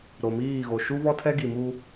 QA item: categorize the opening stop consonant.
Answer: aspirated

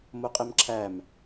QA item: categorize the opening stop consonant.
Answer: ejective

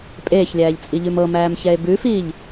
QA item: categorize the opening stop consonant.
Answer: ejective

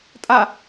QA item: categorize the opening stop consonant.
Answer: ejective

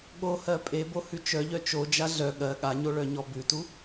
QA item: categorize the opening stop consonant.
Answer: implosive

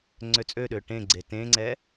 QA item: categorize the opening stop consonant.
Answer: click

